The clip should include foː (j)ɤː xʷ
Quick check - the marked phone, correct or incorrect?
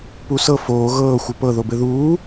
incorrect